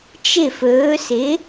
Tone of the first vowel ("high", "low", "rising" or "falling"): falling